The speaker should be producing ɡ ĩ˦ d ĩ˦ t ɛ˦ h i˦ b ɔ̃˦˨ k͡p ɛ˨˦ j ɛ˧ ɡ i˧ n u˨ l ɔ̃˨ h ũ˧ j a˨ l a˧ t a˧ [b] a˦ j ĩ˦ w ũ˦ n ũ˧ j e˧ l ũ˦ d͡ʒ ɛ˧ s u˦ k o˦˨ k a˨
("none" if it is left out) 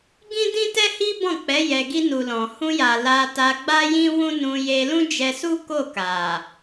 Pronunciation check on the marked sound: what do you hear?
ɡ͡b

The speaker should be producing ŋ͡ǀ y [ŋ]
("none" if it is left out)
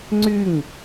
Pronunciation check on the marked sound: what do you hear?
ŋ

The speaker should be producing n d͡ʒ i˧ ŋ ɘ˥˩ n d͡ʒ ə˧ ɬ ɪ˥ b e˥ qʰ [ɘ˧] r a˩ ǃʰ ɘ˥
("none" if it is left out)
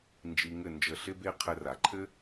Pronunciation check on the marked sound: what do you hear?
ɘ˧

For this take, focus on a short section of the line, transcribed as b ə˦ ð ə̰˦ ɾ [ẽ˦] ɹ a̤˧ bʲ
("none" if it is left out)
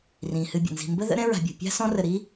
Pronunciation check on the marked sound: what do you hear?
ɛ̃˦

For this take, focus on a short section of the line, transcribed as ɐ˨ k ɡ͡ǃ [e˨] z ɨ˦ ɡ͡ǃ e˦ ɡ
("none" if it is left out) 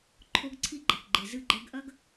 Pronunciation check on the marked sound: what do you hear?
e˨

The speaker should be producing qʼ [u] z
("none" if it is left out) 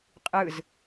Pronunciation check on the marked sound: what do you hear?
ɯ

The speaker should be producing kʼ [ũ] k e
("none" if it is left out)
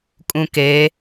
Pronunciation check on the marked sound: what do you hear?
ũ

